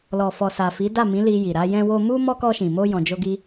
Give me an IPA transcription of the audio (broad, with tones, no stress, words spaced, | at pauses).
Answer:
lɔ˨fɔ˨sa˨ fi˨˦da˦˨mĩ˨˦ li˧ji˨ɾa˨˦ jɛ̃˧wo˧mu˦ mɔ˦kɔ˧ʃĩ˨ mo˧jɔ̃˨d͡ʒo˧ɡi˧